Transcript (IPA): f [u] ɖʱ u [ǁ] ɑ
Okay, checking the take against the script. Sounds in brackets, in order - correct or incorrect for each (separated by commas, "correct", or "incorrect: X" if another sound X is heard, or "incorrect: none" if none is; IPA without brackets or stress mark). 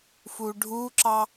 correct, correct